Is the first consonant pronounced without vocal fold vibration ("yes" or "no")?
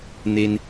no